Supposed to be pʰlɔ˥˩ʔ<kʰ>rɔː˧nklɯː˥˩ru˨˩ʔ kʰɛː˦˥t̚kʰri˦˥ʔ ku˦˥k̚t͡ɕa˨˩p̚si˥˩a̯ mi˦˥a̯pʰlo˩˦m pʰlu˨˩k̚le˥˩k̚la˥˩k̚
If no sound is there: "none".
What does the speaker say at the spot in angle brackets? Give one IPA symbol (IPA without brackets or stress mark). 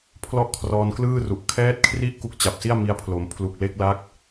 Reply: kʰ